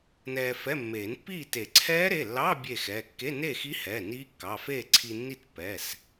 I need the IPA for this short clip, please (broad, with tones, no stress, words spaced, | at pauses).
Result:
nɛː˧fɛ˧˥˧ mːeː˨˩˦npːiː˥˨ te˨˩˦ǀʰɛː˦˥ɾe˩˧˩lːɑ˧˥˧ bʲe˥˨xɛː˩˧˩ kːe˧˥˧neː˥˨xi˦˥hɛː˩˧˩ niː˦˥kːɑ˩˧˩feː˥˨ ǀʰi˧nːi˥˨t pːɛ˩˧˩s